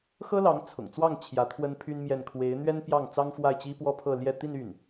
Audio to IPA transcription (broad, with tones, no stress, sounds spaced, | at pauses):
x ɤ˥ l ɑ˧˥ ŋ t͡sʰ ʊ̰˨˩ ŋ t͡s w ɑ˥˩ ŋ t͡ɕʰ j ä˧˥ t̪ʰ w ə˥ n pʰ y˥ n m j ɛ˥˩ n kʰ w e˧˥ ɪ̯ n̪ ɥ ɛ˥ n p j ɑ˥˩ ŋ t͡s ɑ˥ ŋ f w a˥˩ ɪ̯ t͡ɕ i˥ p w ɔ˥ pʰ ɤ˥˧ l j ɛ˥˧ t̪ i˥˧ n y˥˩ n